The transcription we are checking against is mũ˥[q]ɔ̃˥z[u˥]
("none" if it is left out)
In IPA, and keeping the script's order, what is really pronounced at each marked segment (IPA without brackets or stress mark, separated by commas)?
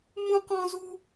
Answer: q, u˥